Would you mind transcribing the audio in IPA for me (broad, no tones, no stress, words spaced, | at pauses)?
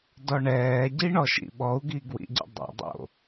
dɔɳɛːɟi ɳɔʃḭɓɔu̯ɡi ɡwḭɟḛdˤḛdˤo̰